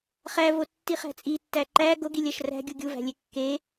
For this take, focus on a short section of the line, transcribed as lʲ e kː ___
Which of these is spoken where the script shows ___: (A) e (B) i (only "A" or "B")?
A